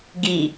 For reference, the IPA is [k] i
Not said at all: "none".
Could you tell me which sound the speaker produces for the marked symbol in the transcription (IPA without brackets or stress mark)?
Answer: ɡ